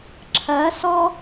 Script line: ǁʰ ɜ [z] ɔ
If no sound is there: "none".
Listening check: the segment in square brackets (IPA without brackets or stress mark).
s